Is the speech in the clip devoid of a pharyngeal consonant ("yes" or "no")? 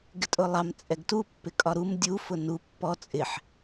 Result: no